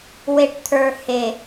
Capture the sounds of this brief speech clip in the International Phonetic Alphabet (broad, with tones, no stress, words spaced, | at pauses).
we˨ʈt̪ʰə˞˨ he˨